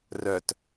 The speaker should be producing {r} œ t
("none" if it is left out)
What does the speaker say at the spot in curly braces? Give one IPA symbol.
r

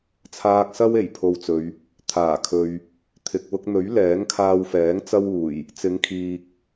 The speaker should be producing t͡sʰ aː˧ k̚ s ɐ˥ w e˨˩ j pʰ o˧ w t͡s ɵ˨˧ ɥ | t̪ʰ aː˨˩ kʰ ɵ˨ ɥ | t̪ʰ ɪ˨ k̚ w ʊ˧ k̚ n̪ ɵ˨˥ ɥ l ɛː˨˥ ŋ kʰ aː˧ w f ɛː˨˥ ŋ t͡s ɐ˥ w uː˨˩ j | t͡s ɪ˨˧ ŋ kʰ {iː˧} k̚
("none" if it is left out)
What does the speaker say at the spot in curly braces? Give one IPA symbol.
iː˨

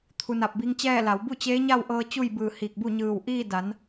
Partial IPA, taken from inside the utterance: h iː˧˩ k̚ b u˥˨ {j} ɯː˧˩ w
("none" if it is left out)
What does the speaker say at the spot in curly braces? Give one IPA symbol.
ɲ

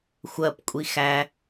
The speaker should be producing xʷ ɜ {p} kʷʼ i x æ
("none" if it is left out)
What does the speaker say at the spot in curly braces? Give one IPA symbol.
p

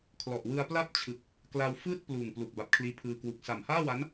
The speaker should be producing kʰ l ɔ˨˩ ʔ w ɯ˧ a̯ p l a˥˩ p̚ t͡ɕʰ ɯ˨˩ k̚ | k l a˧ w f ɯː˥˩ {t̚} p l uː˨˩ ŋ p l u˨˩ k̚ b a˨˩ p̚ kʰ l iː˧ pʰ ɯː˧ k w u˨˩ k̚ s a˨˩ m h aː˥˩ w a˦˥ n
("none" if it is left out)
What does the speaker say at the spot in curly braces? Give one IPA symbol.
t̚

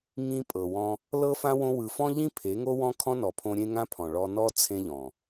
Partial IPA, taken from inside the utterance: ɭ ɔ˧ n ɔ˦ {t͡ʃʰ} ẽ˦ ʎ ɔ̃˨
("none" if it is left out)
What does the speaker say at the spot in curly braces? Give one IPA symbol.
t͡sʰ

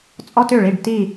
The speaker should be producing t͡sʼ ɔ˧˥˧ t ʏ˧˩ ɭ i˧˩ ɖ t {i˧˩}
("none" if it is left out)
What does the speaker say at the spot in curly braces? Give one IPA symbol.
i˧˩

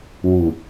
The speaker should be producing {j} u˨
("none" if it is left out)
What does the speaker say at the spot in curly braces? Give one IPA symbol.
w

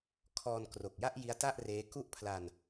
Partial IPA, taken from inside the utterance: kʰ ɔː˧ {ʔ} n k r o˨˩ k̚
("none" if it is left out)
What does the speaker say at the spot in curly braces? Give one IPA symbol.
none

